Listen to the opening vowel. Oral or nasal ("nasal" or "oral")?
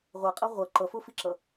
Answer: oral